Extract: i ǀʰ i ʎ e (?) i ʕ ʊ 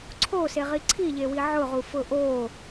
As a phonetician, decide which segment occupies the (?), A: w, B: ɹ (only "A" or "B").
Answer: A